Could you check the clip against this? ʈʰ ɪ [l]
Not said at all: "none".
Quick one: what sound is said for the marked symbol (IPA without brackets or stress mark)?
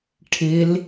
l